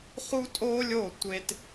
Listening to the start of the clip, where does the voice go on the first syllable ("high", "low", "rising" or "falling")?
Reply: high